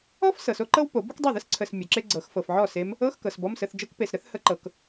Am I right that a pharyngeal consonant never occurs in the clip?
no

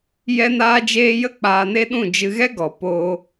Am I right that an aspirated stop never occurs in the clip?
yes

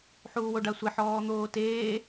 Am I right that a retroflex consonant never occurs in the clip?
no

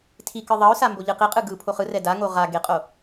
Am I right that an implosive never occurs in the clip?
yes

